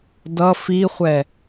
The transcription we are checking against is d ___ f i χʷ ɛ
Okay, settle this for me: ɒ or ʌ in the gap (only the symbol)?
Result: ʌ